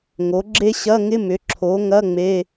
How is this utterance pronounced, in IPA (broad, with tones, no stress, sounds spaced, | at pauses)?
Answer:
ŋ o˩˥ ɡ͡ǁ e˥ ɕ ɐ˧˥˧ ŋ ɪ˧˥˧ m ʏ˩˥ ǁʰ o˩˥ ŋ ɐ˧˥˧ ŋ͡m e˧˥˧